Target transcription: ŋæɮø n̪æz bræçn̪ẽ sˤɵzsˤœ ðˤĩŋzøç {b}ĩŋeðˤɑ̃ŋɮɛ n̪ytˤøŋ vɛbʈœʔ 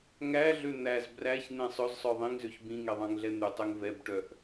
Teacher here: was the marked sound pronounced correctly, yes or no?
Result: yes